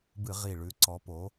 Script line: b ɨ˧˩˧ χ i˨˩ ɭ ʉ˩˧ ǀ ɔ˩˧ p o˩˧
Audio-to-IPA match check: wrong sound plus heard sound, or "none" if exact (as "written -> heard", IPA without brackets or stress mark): χ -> ʁ